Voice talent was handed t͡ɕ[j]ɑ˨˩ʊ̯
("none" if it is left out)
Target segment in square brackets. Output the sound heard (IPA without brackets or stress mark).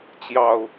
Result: j